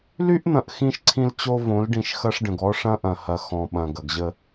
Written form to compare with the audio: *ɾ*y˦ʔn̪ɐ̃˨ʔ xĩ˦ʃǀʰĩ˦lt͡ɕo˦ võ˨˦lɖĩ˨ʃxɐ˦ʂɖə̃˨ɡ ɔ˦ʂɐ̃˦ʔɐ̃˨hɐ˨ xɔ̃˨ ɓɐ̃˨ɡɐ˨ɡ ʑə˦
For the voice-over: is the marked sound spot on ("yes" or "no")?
no